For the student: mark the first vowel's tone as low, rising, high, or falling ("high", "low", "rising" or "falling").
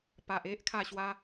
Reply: low